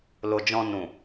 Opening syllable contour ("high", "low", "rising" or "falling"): low